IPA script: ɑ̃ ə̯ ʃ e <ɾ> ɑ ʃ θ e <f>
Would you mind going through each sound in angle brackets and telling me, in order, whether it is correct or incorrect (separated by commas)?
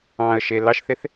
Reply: incorrect, incorrect